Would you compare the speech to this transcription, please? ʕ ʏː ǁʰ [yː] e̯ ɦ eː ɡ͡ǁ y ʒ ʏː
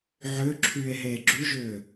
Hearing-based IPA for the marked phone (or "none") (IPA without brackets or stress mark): yː